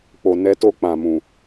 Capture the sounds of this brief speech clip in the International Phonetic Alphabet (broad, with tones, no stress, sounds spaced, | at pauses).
k͡p o˨ n ɛ˨˦ t o˧ k͡p ã˨ m ũ˨